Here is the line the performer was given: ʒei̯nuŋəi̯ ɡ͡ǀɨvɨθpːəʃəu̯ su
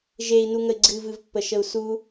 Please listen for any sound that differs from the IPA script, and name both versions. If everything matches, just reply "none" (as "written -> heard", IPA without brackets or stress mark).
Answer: θ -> v